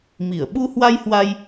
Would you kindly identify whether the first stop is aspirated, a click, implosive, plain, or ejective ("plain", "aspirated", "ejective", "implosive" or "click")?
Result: implosive